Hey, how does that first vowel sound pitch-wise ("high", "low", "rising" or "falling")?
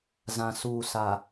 low